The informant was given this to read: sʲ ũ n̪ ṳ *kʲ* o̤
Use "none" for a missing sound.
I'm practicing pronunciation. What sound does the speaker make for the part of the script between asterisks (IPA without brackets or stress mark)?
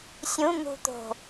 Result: t̪